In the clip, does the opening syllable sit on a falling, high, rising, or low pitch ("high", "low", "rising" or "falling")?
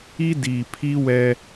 high